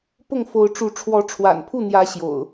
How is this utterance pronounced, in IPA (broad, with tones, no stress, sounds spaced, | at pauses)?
p ʊ˥˨ ŋ f o˨˦ ʊ̯ ʈ͡ʂ u˨˦ ʈ͡ʂʰ w ɔ˨˦ ʈ͡ʂʰ w a̰˨˩ n pʰ u˥˨ n̪ j ä˨˦ ɕ j o̰˨˩ ʊ̯